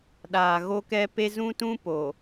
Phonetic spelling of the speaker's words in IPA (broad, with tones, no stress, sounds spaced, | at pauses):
ɗ aː˨ ɣ o˦ k ɛ˦ p e˦ z ũ˦ t ũ˦ p o˨